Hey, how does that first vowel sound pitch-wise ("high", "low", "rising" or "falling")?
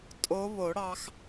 rising